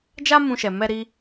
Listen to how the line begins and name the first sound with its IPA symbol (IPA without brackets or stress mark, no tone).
d͡ʒ